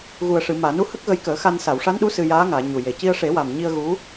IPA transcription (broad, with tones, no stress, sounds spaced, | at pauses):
ɣ u˨˩ ə̯ ʂ ɨ˨˩˨ m aː˨˩˨ n u˧˥ h ə˦˥ k̚ ɣ ə˧˥ j k əː˨˩˦ x a˧ n s a˨˩˨ w ʂ a˧˥ n ɗ u˧˥ s ɨ˧ j aː˧˥ ŋ aː˨˩˨ ɲ u˨˩ j e˨˩ c i˧ ə̯ ʂ e˨˩˦ w a˨˩ m ɲ i˧ ə̯ ɣ u˧˥